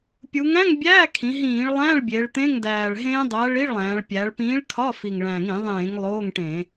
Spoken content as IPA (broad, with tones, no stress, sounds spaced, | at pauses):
pʲ u˩˧ ŋ æ̃˧˥˧ ŋ bʲ æː˧˥˧ kʰ ĩ˩˧ ɦ ĩː˧˩˧ ɭ lˠ æ̃˧˥˧ ɭ bʲ e˩˧ ɭ t̪ ẽ˧˥˧ ŋ d æː˨˩ ɭ ɦ ẽː˦˥ dˤ æ˨˥ ɭ i˧˥˧ ɭ lˠ æ̃ː˩˧ ɭ pʲ æ˩˧ ɭ p ĩː˨˥ ɭ kʰ ɒ˧˥˧ f i˨˩ ŋ ɭ æ̃˨˩ ŋ ĩ˧˩˧ ðˤ ẽː˧˩˧ ŋ lˠ oː˧˥˧ ŋ ʈ ẽ˧˩˧